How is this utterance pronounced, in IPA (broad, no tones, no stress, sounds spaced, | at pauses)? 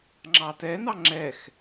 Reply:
ŋ͡ǁ ɑ t ɛ n ɑ ŋ͡ǁ ɛ x